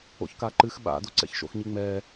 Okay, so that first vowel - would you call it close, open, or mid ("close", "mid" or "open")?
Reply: mid